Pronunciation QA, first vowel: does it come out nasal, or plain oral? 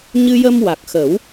oral